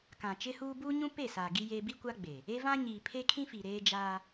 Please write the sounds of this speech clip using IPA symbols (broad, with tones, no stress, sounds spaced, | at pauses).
k ã˨ t͡ʃ ɪ˦ h uː˦ b uː˦ ɲ ũ˦ p e˦˨ s aː˨ ɡ i˦ j eː˦ b i˦ kʷ a˦ ɡ͡b e˨ | e˦ v ã˦ ɲ iː˨ pʰ e˦ kʰ ĩ˦ f i˨ ɾ eː˦ d͡ʒ aː˦